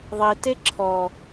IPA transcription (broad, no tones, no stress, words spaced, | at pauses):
ðˤite ǁʰɔ